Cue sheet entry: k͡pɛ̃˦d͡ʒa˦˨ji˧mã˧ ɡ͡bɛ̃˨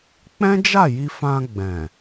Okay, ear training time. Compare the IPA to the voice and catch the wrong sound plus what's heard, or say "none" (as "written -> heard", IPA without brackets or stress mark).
m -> f